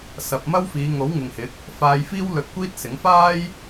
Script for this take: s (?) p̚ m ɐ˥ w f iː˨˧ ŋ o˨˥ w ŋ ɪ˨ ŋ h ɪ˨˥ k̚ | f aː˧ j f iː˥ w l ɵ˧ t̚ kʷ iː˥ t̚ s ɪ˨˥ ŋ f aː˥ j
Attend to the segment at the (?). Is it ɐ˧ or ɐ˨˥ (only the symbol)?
ɐ˧